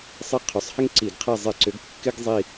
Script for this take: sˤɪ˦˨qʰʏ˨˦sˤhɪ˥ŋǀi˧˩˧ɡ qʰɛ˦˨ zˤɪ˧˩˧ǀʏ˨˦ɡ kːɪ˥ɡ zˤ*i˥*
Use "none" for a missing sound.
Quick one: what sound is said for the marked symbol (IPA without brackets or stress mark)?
i˦˨